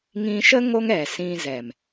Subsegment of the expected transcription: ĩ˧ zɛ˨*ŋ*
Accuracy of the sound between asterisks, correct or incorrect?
incorrect